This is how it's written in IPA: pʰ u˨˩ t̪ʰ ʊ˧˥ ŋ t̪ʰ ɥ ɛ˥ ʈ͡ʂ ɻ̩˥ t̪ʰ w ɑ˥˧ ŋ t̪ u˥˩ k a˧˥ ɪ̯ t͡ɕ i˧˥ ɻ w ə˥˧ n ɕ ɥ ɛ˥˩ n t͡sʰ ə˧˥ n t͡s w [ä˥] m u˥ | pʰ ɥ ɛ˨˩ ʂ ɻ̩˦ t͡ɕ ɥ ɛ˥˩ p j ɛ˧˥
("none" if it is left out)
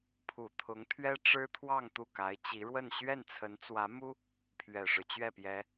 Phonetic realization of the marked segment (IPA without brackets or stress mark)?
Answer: ä˧˥